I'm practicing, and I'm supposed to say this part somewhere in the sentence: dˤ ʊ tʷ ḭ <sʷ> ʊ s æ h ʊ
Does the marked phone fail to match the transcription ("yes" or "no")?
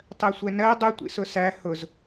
yes